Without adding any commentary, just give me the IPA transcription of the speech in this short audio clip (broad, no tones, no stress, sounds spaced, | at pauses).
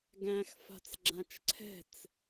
ɡ æ̃ x f a̤ t͡s ɡ͡ǁ ã t͡ʃ ǀʰ ɛ̤ t͡s